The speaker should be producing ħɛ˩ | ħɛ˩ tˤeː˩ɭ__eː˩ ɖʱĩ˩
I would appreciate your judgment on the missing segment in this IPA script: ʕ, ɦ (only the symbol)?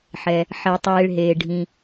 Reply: ɦ